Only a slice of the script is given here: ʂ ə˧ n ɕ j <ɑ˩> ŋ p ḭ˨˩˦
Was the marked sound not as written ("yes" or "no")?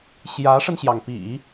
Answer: no